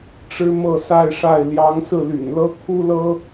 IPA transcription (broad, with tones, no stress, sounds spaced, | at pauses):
ʈ͡ʂ ɻ̩˥ m ɤ˥˧ s a˥˧ ɪ̯ ʂ a˥˩ ɪ̯ l j ɑ˧˥ ŋ s ɹ̩˥˩ l y̰˨˩ n l ɤ˥ kʰ u˥ l ɤ˥